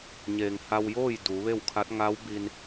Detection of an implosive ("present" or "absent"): absent